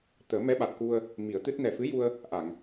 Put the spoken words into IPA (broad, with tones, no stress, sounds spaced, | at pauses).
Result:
t̪ əː˨˩˦ m ɛ˧˥ ɓ a˨˩ t̚ k u˧ ə̯ | m i˨˩˦ ə̯ t̪ ɨ˦˥ t̚ n ɛ˨˩ f ɨ˧˥ j u˧ ə̯ | ʔ a˨˩˨ ŋ